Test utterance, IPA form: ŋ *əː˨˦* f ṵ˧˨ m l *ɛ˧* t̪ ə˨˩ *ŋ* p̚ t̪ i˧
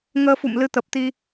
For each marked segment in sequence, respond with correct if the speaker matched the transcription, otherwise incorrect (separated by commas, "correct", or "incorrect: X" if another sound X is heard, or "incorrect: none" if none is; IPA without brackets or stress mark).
incorrect: əː˧, incorrect: ɨ˧, incorrect: none